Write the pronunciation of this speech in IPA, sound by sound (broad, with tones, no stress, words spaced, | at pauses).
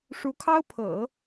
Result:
ʂu˧˥kʰɑ˥ʊ̯pʰɤ̰˨˩˦